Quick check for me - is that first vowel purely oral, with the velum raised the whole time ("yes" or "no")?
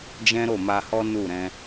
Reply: no